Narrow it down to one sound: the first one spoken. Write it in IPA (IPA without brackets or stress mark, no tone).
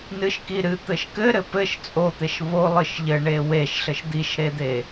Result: n